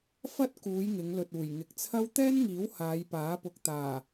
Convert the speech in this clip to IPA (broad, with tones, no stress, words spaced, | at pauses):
fɐ˥t̚kuː˨˧j ŋɪ˨˧ŋlɵ˨t̚ uː˨˩j ŋɪ˨˥k̚t͡sʰɐ˥w t̪ɛː˥nŋiː˨˥w haː˨˧jpaː˨˥pʊ˨k̚t̪aː˨˩